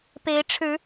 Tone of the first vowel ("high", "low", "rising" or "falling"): rising